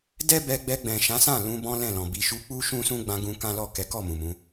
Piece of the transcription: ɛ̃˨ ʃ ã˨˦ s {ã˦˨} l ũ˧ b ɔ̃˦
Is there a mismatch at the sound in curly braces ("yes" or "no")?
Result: no